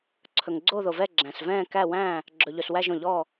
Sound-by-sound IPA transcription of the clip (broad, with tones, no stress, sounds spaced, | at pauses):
ǀʰ ɵ˩ ŋ ɡ͡ǀ o˧˩ ð o˩ v ɛ˧˩ ɡ͡ǁ æ̃˩ s v ɛ̃ː˧˩ k æ˧˩ w æ̃ː˧˩ | ɡ͡ǁ ɵ˩ ʎ ɵ˩ s w æ˧˩ ʒ õ˩ ʎ ɔː˧˩